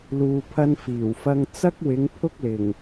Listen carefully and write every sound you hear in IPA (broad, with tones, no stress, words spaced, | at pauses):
luː˨pʰɐ˧n fiː˨˩wfɐ˧ŋ t͡sɐ˥k̚wɪ˨˧ŋ pʰʊ˥k̚lɪ˨˩ŋ